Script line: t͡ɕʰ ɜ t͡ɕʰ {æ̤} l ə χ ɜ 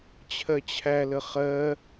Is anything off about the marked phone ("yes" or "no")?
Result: yes